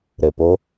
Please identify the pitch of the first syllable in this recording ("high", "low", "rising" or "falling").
low